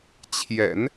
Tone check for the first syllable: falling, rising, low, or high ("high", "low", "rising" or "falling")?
low